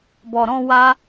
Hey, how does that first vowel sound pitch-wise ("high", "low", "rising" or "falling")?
low